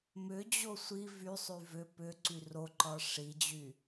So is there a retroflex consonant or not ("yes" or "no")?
yes